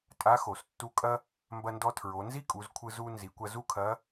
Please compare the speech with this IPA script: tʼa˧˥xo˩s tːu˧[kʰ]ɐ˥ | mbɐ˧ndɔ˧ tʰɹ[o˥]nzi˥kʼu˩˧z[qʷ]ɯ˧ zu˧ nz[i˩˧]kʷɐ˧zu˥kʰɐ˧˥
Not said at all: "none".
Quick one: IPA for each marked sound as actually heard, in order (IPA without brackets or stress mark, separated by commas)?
kʼ, o˩˧, kʷʰ, i˩˧